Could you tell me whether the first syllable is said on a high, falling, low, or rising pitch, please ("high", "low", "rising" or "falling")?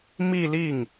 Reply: falling